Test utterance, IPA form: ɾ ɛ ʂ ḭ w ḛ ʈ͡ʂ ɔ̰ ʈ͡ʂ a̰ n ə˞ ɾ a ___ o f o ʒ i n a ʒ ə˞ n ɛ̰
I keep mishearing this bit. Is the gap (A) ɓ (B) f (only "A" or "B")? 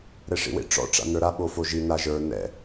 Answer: A